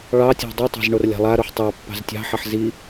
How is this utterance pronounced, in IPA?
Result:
ɭ ɑ tʲ a̤ dˤ i tˤ ɑ̤ z ɳ o r lʲ ɑ̤ lˠ a ɾ o ħ tˤ ɑ pː ɑ̤ z tʲ ɑ̤ ħ a ħ z i

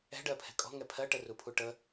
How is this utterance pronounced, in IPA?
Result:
ɛ̤ ɖ ɜ pʰ ɛ̤ kʼ ɔ̤ ŋ ɛ pʰ ɜ ʈ ə r u pʰ u ʈ ə

